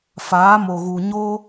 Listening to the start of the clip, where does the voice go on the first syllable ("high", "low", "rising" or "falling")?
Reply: rising